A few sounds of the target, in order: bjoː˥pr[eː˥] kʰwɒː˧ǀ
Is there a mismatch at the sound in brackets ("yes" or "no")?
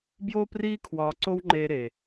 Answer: yes